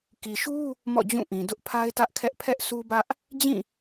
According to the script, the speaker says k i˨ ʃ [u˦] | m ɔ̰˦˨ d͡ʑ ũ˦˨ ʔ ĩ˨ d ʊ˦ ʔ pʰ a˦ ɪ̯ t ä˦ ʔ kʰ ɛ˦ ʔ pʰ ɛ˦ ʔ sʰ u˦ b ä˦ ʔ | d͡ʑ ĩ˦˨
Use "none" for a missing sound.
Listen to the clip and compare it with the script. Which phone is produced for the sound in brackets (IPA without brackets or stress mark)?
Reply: u˦